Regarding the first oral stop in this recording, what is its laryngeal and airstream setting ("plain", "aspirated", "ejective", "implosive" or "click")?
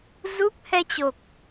plain